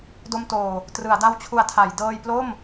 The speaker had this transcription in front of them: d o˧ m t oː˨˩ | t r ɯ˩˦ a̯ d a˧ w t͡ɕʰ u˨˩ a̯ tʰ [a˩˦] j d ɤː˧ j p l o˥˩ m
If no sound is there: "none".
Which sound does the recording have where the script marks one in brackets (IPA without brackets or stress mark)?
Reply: a˩˦